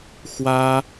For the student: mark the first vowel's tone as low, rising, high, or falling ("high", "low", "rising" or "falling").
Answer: high